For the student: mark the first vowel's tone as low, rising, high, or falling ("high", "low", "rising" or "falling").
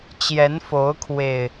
rising